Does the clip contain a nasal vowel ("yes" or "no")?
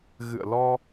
no